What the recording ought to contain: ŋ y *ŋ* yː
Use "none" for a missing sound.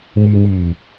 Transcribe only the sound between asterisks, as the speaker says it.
ŋ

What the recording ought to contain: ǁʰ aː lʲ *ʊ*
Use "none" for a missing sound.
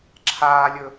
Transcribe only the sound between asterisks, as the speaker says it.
ɵ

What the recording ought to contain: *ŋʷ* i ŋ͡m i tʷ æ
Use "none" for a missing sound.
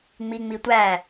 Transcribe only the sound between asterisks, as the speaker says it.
ŋ͡m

